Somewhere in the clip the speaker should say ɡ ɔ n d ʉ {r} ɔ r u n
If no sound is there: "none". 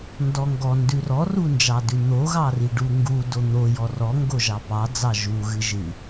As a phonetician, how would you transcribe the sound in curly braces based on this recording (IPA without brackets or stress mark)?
r